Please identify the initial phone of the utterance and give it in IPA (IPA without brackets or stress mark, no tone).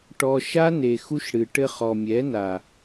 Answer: ʈ